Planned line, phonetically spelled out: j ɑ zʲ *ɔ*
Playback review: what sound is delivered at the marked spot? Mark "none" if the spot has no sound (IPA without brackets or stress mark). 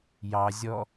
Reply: ɔ